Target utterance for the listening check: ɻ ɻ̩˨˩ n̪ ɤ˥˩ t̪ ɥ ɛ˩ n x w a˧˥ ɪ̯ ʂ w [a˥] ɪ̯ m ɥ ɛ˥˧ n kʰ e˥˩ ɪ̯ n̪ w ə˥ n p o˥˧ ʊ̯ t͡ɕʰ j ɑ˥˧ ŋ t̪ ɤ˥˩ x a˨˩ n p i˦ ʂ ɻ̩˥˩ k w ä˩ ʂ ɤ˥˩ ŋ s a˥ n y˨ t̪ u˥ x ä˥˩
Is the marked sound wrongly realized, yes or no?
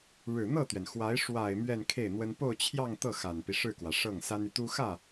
yes